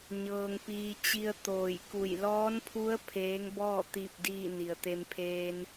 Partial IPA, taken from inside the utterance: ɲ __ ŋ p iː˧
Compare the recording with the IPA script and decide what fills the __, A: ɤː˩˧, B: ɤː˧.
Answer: B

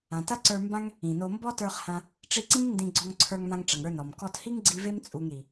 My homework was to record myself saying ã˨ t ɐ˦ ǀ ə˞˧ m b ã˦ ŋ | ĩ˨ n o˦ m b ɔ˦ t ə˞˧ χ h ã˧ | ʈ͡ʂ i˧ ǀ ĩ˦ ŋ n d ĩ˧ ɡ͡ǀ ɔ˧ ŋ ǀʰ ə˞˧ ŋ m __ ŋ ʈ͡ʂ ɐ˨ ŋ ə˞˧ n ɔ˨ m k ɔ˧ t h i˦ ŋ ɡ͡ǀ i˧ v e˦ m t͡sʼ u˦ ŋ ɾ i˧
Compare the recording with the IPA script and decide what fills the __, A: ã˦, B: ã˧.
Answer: B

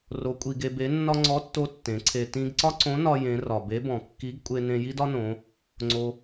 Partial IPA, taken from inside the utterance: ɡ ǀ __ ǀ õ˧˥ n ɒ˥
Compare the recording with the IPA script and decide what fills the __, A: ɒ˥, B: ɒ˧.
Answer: A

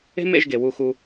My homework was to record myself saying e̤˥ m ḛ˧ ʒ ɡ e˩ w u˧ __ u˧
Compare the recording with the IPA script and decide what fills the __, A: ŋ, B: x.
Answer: B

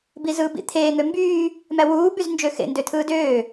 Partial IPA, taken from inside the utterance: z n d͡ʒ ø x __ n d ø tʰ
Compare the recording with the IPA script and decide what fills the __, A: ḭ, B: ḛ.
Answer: B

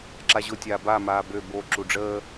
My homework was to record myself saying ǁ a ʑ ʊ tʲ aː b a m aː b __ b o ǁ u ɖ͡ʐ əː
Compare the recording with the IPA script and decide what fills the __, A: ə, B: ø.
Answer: B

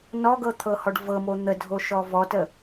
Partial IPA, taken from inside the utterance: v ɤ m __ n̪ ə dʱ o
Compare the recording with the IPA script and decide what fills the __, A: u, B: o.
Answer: B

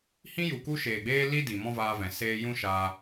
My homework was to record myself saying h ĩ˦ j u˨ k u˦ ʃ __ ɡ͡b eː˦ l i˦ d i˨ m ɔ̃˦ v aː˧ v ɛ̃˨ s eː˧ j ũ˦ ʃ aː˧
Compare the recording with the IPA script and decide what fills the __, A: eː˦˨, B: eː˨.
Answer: B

